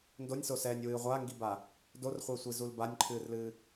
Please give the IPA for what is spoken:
n d o nʲ s o s ɛː nʲ w ɨː ʁʷ a ŋ ɡ i b a | d o r χʷ e sʷ i z u l b a nʲ ǃʰ ɨː r l ɨː

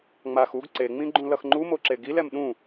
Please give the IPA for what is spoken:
ŋ͡m a x u ɡ ǀ e ŋ͡m ĩ ɡ͡ǃ ũ l ʌ x ŋ͡ǃ u m o ǁ e ɡ i l ɛ m ɗ ũ

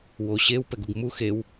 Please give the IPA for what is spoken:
w o ɕ e w p ɛ ɡ u ɡ m u x e w

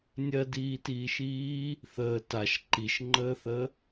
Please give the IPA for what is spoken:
nʲ ɜ d iː t iː ʃ iː | θ əː t a ʃ ǃ i ʃ ŋ͡ǃ əː θ ə

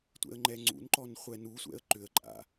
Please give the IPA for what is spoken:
tʷ ɛ̰ ə̯ ŋ͡ǃ ɛ ŋ͡ǀ ṵ n ǃ ɔ n χʷ ɛ n u sʷ ɛ̰ ə̯ ǃ ʏ ə̯ ǃʼ a̰

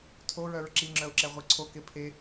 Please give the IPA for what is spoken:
tʰ o ɹ œ ɹ ǁ i ŋ͡ǁ œ ʊ̯ ǁ ɛ ʁʷ i ǀʰ o k e pʰ e

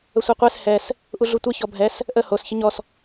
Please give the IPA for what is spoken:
ə sʷ ɤ qʷ ɛ s h ɛ s | ʔ u ɮ u tʷ ə ç ɔ bʱ ɛ s | ʔ ə h o s ç ə ɲ ɔ s

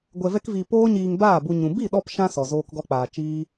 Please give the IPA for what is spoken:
ɡʷ ɛ˧ v ɛ˦ k v iː˧ p oː˦ ɲ iː˧ ŋ b aː˦˨ b u˧ ɲ ũ˨ b i˦˨ ɗ ɔ˧ p ʃ ã˦ s ɔ˨ z oː˧ k ɡ ɔ˧ k͡p aː˨ t͡ʃ iː˦

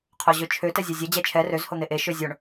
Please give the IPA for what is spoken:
qʰ o ʑ ø t͡ʃʰ ø t ɛ zʲ e zʲ ɛ d͡ʑ ɛ t͡ʃʰ ɛ r ø z h o n̪ e ʔ e ʃ ø zʲ o ɳ

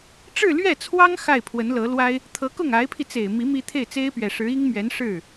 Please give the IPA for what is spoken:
ʈ͡ʂ ɻ̩˥˧ l ɥ ɛ˥˩ t͡sʰ w ɑ˥ ŋ x a˥˩ ɪ̯ pʰ w ə˧˥ n l ɤ˧˥ l w a˥ ɪ̯ | t̪ʰ ɤ˧˥ k ʊ˥˩ ŋ a˧˥ ɪ̯ pʰ i˧ t͡s e˨˩ ɪ̯ m i˧˥ m i˥ t̪ʰ e˥˩ ɪ̯ t͡s e˥ ɪ̯ p ɥ ɛ˨˩ ʂ ɻ̩˧˥ i˥ ŋ m ɥ ɛ˧˥ n ʂ ɻ̩˥˩

